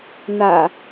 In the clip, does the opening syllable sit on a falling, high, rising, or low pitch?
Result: low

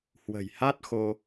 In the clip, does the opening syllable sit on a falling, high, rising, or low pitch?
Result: low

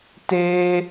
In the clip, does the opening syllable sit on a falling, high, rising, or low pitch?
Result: high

